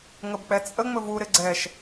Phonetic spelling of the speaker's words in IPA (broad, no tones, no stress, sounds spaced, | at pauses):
ŋ ə b k͡p ɛ t͡sʼ ə ŋ͡m ɵ v u ɾ ɪ ɡ͡ǀ ɛ ʃ